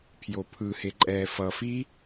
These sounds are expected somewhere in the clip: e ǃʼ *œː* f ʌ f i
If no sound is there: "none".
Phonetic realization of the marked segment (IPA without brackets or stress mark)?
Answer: ɛː